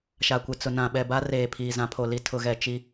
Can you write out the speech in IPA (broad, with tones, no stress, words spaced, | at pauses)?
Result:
ʃa˨kʷɪ˨t͡sʊ˨ nã˨ɓɛ˨ba˦ reː˨ pʰiː˨zã˨˦pʰo˨li˦˨ tʰʊ˨ɣɛ˨ t͡ʃi˦